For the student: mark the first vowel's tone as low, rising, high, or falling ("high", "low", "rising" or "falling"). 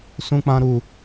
high